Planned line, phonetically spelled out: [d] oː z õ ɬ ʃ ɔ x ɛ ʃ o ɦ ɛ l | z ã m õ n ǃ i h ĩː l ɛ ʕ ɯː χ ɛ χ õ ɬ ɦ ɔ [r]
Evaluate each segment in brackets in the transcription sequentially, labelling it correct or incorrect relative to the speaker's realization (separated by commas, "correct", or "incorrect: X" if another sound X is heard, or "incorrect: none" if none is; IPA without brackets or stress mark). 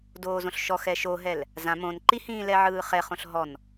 correct, incorrect: n